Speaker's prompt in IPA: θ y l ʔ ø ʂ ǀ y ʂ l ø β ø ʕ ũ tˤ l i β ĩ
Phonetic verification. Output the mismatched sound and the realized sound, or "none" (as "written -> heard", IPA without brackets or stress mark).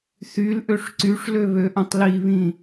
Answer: ʕ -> ʔ